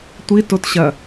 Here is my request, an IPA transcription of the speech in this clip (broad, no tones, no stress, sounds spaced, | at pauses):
tʷ i t o t ɕ ɐ